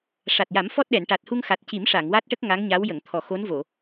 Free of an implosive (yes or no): no